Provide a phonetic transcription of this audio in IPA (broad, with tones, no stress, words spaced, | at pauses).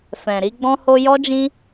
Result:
fɛ̃˨ɾi˧ ɡ͡bɔ̃˧ho˧ jɔ˦d͡ʒĩ˦